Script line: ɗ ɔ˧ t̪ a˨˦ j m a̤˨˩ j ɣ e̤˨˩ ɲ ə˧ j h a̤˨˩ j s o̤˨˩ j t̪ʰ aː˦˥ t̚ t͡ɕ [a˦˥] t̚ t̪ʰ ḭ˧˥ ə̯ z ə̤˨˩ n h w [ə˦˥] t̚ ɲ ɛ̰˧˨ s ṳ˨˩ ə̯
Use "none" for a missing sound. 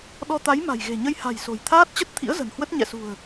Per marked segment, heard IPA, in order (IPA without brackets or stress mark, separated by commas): ə˦˥, ə˦˥